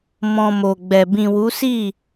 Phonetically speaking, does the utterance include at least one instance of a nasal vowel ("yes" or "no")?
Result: yes